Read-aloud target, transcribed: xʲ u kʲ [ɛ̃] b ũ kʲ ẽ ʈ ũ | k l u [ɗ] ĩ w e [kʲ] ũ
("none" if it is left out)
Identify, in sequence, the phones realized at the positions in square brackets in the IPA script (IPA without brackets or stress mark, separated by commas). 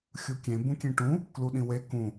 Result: ẽ, ɗ, k